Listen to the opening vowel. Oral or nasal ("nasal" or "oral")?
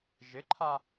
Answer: oral